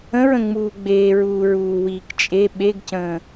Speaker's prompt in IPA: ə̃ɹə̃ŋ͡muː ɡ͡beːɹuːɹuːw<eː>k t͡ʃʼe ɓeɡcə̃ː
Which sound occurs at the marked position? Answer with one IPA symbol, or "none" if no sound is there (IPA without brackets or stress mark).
iː